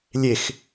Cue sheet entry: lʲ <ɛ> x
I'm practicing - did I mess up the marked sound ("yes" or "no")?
yes